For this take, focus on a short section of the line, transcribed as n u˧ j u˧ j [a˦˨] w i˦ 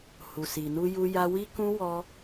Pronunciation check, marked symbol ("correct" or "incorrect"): incorrect